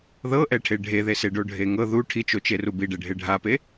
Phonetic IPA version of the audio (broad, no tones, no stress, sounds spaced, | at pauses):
ð ɤ ʔ ɛ ʈʰ e ɖʱ e ð e s e ɖ o ɖʱ e ŋ ɤ ð u ʈʰ i t͡ʃ o t͡ʃ e r u b i ɖ e ɖʱ e ɖʱ a p e